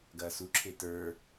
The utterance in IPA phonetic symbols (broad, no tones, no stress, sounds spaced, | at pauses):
ɡ ɐː s u ǁʰ e t ə˞